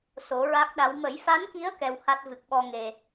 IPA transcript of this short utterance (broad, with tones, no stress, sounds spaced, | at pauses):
s o˨˩˦ ɹ a˦˥ k̚ ɗ a˧˥ w m ə˨˩˦ j f a˧˥ n k i˧˥ ə̯ k ɛ˧ w h a˦˥ t̚ v ɨ˨˩ k̚ ɓ ɔ˧ ŋ e˨˩